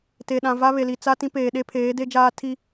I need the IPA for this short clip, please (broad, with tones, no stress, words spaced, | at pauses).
te˨ɗã˨va˦ βe˨li˨ t͡sa˦ tĩ˦peː˨ ɗe˦pʰeː˨˦de˦d͡ʒaː˦ tʰi˦